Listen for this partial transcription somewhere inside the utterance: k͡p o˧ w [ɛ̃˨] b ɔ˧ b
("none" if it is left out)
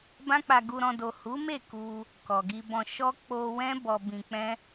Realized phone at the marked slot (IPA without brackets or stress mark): ɛ̃˦